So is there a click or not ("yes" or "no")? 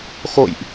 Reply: no